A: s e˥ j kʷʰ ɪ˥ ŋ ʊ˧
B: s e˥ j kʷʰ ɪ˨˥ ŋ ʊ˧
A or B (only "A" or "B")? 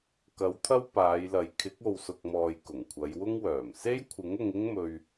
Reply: B